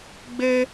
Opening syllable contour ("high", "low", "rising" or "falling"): high